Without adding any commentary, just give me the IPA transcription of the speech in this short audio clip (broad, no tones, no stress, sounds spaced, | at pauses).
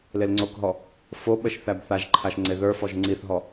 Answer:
l e l ŋ͡ǀ o k ɦ ɔ | f o ɓ ə ʃ θ æ b θ a ʒ ǃʰ a ʃ ŋ͡ǀ e ð ə˞ f ɔ ʒ ŋ͡ǀ i θ ɦ ɔ